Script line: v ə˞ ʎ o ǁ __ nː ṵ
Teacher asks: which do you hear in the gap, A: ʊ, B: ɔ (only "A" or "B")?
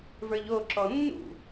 B